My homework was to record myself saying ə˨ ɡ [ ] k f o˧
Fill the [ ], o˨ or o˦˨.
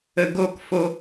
o˦˨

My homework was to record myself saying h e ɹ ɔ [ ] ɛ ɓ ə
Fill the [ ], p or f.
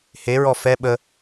f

